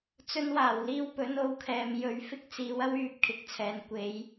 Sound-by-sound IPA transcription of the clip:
t͡s ɵ˧ n w aː˨˩ w l iː˧ w p ɵ˨˥ n o˧ w kʰ ɛː˨ m j ɵ˨ ɥ f ɪ˥ k̚ t͡s iː˨˧ w ɐ˥ w yː˨˥ p̚ kʰ ɪ˨˥ k̚ t͡sʰ ɛː˨ n kʷ e˨˥ j

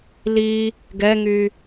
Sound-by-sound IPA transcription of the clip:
l i | ɡ ɛ ŋ y

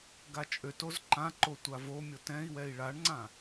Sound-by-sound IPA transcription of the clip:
ɡ a t͡ʃʼ ø t o z ǃ ã ǃ o tʷ a v o mʲ o t ɛ̃ i̯ w ɛ i̯ ɭ a ɳ ŋ͡ǀ ã

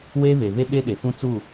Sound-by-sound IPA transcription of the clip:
w e˦ v e˨ v e˦ ɓ e˦ ɗ e˨ f ũ˦ t͡s u˦˨

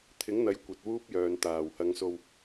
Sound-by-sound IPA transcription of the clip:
t̪ʰ ɪ˨˥ ŋ n̪ ɐ˨˥ j kʷ ɐ˨˥ t̚ w uː˥ p̚ j œː˨ n t̪ aː˨˩ w h ɐ˨˧ ŋ s o˧ w

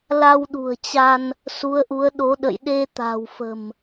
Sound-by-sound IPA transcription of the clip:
l a˧ w ɗ ṳ˨˩ ə̯ t͡ɕ a˧ n | s u˨˦ ə̯ ʔ u˨˦ ə̯ ɗ o˨˦ ɗ ə̰˧˨ j ɗ e˧ t̪ a̤˨˩ w f ə̤˨˩ m

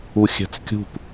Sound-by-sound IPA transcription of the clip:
u xʲ æ̤ t͡s kʲ ṳ p

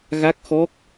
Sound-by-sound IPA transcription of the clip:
ɣ a˦˥ k̚ x ɔ˦˥ k̚

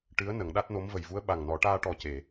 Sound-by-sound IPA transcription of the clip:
ʈ ɨ˧˥ ə̯ n ə˨˩˦ ŋ ɗ a˦˥ t̚ n o˧˥ m v ə˨˩ j v u˧˥ ə̯ ɓ a˨˩ ŋ n ɔ˨˩˦ ʈ aː˧ ʈ ɔ˨˩ c e˨˩˨

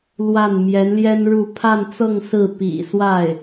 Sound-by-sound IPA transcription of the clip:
l w a˥˩ n m j ɛ˧˥ n l j ɛ˥ n ɻ u˥˧ pʰ a˥˧ n t͡s ɤ˥˧ ŋ s ɹ̩˥˩ p ḭ˨˩ s w a˥˩ ɪ̯

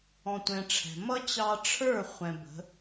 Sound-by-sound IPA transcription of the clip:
ɔ̃˦ tʷ ɛ̃˦ ʈ͡ʂʰ ɛ̤˧ m ʌ˦ t͡ɕ ɑ˧ ʈ͡ʂʰ ə˞˦˨ χʷ ɛ̃˧ b ə̤˨˦

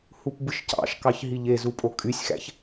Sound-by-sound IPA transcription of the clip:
h u p b ɯ ʃ c ɑ̰ ʃ k ɑ ç ɦ i ʎ e z u pʼ o kʼ y sʲ x æ̰ ç

